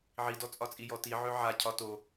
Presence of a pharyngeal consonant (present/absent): present